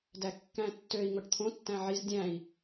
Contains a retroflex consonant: yes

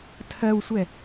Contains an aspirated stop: yes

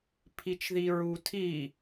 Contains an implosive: no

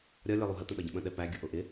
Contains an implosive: yes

